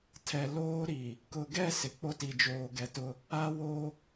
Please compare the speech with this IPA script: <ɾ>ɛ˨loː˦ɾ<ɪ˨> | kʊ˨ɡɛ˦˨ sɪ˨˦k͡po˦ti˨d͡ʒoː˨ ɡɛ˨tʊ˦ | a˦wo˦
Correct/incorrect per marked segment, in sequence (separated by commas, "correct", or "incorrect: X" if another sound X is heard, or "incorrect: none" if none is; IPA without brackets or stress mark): incorrect: tʰ, incorrect: i˨